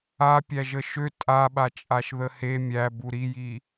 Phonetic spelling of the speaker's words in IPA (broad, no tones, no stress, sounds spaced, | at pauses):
a pʲ æ ʒ ə ʃ ø tʼ a ɓ a t͡ʃʼ a ʃ ð ə h e mʲ æ b u ɾ i j i